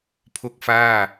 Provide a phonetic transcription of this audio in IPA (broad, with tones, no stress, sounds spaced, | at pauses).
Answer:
pʰ o˦˥ k̚ f aː˥˩